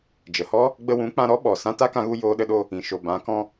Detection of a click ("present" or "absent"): absent